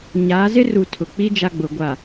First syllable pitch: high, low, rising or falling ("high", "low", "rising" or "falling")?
rising